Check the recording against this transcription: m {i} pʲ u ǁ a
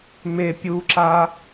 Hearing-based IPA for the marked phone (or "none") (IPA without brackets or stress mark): e